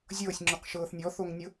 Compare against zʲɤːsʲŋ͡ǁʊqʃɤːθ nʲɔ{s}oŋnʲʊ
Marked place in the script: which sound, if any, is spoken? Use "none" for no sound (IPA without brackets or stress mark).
θ